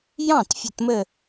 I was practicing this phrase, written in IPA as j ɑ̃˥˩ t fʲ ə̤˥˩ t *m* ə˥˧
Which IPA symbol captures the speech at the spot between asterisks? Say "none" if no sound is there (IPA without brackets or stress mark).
m